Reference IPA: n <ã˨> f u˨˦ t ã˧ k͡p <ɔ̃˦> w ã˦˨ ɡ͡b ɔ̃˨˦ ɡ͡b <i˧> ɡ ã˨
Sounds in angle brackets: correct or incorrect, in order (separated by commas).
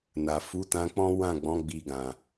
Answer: incorrect, correct, correct